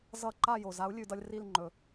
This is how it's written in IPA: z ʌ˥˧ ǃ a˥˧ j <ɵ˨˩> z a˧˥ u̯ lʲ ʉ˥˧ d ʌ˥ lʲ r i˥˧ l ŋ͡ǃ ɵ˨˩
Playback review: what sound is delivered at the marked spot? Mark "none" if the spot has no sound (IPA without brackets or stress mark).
o˨˩